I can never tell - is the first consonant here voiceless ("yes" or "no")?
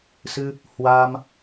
yes